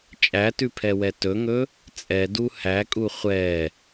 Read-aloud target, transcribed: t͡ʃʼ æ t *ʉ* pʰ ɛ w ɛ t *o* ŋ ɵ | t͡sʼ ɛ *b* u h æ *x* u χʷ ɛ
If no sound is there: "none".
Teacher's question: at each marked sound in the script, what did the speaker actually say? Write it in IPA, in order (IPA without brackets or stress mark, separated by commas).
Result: ʉ, ɵ, d, kʼ